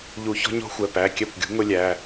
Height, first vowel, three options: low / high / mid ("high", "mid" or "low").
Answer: high